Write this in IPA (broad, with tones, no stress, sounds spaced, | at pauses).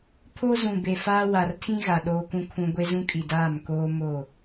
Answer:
pʰ o˦ z ũ˨ b e˨ f aː˦ w a˨ r tʰ ĩ˦ ɣ a˨ ɗ oː˦ k ũ˦ kʰ ũ˦ ɡʷ e˦ z ũ˦ kʼ i˨ d aː˦˨ m k oː˦ m o˦˨